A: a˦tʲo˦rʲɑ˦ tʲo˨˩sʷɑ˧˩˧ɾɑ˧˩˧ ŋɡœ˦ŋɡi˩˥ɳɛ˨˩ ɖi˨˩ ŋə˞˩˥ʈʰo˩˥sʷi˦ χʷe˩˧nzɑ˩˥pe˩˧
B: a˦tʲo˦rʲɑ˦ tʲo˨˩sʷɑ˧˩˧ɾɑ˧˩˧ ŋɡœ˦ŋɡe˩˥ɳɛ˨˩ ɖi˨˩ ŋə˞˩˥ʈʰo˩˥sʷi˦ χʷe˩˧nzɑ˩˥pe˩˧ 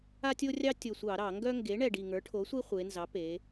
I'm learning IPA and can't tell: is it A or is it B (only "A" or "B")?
B